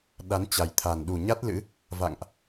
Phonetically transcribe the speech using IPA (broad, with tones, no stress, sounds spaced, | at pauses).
ɗ a˨˦ n t͡ɕ a˨˩ j t̪ʰ a˨˩ n ɗ u˨˩ ɲ a˦˥ t̚ l ɨ̰˧˥ | v a̰˧˨ ŋ ʔ